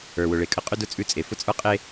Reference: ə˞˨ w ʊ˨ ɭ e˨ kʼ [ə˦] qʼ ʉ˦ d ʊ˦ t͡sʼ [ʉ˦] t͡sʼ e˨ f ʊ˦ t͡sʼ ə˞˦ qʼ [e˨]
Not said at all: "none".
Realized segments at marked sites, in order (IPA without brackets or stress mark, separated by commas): ə˦, ʉ˦, e˦